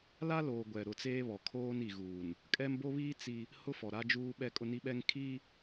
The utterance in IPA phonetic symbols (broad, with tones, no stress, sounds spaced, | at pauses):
l a˦ l oː˨ ɡʷ ɛ˨ ɾ ʊ˨ t͡s eː˦ β ɔ˨ kʰ oː˦ n i˨ ɣ uː˨ n | kʼ ɛ˦ m b o˦ β iː˦ t͡s i˦ | h ʊ˦ f ɔ˨ ɾ a˦ d͡ʒ uː˦ ɓ ɛ˦ kʼ ʊ˦ n i˦ ɓ ɛ˦ ŋ kʰ i˦